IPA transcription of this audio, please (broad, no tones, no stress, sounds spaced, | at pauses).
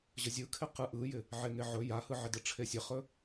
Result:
ʑ ə zʲ ɯ kʰ ɪ q ɯ ʔ ɯ j ɪ | ʕ e ŋ e ʕ ɵ j a h ɯ ʕ ɪ d ɯ ʈ͡ʂʰ e sʲ ə χ ɵ